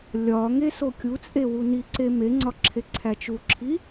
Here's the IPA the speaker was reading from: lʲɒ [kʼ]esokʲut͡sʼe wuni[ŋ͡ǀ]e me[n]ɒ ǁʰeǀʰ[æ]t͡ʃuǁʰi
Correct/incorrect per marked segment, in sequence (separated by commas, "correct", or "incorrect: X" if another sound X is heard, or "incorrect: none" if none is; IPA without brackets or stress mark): incorrect: ŋ, incorrect: ǀ, incorrect: ŋ͡ǀ, correct